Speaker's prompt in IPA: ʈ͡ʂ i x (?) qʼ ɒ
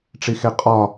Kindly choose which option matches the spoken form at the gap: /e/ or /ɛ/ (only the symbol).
e